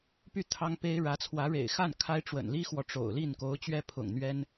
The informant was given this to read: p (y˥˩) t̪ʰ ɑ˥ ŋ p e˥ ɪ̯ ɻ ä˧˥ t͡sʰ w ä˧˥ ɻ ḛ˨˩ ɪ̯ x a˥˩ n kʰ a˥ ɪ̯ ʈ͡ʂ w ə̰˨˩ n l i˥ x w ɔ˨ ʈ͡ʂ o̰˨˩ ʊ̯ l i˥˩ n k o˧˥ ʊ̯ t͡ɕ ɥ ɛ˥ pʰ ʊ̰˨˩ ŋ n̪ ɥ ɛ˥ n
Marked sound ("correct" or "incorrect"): correct